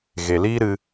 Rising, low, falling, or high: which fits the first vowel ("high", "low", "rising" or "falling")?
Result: low